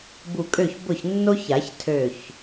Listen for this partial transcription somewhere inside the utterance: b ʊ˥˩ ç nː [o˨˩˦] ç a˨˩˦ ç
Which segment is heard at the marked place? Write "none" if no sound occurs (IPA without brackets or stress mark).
o˥